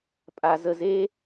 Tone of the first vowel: low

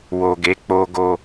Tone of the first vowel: low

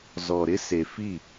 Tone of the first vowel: low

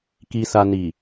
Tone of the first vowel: low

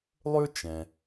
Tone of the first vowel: high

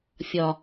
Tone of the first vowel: low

